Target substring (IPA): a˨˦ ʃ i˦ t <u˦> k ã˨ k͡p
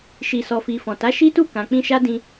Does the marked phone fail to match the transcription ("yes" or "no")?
yes